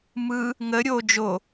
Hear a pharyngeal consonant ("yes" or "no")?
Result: no